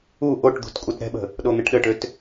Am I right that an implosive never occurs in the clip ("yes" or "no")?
no